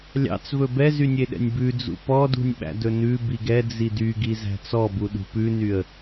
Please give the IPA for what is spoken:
lʲɑ̰t͡svɵ bɛ zynʲeɗɛ̰nʲbʉ d͡zṵpɔdṳnʲ ɓæ̰dɵnʉ biɡɛ d͡zidyɡi zæ̤t͡sɔbu ɗṳpʉnyə̯

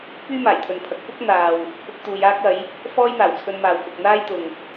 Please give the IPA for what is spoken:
pyː˥maː˨˩jt̪ʰɵ˨npʰɐ˨˥k̚ pʊ˥k̚n̪aː˨w | pʰʊ˧k̚ t̪uː˨˧jaː˥k̚ɐ˨˥j | fɔː˥jn̪aː˨˩wt͡sʰɵ˧nmaː˨w kʊ˨k̚n̪aː˥jt̪ʊ˨ŋ

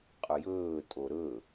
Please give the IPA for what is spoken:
qʼɵjɵː tʼoɾɵ

